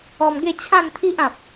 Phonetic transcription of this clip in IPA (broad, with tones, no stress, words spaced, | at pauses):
ɔ˧mɡe˥˧t͡ɕʰã˥˧nt̪ʰi˦ʔ ã˨p̚